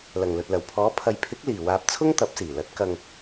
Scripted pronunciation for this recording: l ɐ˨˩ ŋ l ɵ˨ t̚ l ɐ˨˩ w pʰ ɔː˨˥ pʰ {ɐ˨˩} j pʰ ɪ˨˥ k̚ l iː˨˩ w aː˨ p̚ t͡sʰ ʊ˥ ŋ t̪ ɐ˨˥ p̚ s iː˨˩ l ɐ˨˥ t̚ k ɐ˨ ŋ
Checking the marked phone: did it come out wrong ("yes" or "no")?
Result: yes